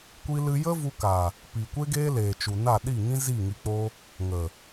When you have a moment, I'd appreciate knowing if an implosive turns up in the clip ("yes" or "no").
yes